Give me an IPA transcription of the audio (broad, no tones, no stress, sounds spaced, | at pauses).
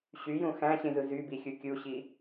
ɕ y j ũ x æ̃ ɕ ĩ z ɯ z y b i xʲ u kʲ u ɕ i